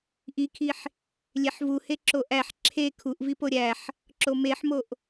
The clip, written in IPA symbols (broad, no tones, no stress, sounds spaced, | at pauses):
ʔ i kʰ i ħ | lʲ e ħ v u h e ǁ o ʔ æ ħ ǁʰ e kʰ u ʔ v i p o ɾʲ æ ħ | ǁ o m e ħ m o ʔ